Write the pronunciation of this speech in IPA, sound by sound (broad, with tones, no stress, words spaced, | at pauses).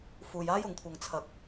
fuː˧jaː˥jʊ˨˧ŋkʷʰɐ˧ŋ t͡sʰɐ˧k̚